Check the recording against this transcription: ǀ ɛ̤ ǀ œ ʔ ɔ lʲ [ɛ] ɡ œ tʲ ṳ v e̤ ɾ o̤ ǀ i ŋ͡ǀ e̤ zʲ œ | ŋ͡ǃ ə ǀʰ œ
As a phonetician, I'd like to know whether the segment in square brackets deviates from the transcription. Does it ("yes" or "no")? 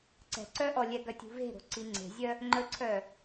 no